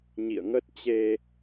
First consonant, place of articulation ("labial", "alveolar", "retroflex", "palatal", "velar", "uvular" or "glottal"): palatal